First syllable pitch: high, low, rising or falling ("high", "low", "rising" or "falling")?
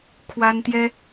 high